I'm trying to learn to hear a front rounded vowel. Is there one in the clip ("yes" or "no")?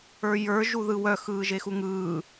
yes